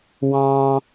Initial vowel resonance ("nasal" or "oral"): nasal